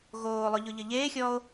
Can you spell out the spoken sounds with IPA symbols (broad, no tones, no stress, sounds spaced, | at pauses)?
ɣ oː lˠ ʊ ʎ ʊ ʎ ə ʎ eː xʲ ɔː o̯